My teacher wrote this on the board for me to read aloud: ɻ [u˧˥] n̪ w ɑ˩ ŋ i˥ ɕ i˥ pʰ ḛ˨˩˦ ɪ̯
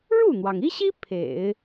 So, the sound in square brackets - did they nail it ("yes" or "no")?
no